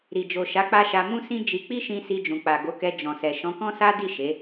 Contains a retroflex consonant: no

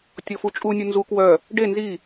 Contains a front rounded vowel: yes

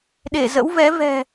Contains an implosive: yes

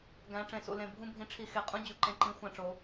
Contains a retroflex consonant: yes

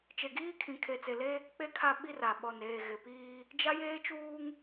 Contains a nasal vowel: yes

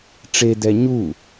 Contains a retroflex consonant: yes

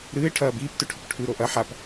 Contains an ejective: no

